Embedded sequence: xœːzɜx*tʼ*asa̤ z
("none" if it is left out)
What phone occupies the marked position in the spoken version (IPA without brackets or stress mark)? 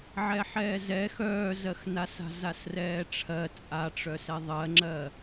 n